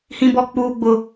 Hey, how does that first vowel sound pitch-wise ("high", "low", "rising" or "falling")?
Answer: high